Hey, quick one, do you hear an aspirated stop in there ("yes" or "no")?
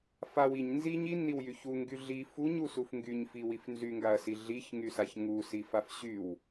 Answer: no